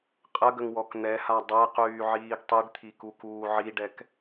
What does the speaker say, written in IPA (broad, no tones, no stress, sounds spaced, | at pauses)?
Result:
qʼ ə ɡ ə ŋ w ɔ k n̪ ɛ h a dˤ ɛ q yː ʕ iː ɡ tˤ i ɖ t̪ʰ i k u k uː ʕ i ɖ ɛ k